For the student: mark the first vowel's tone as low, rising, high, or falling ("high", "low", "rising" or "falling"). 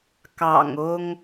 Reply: low